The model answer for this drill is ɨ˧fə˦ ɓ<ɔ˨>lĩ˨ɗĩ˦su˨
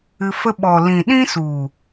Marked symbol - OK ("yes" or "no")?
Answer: yes